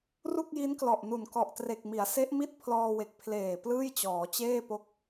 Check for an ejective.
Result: absent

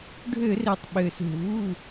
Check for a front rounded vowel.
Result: present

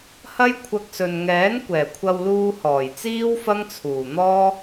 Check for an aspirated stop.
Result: present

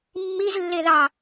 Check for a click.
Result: absent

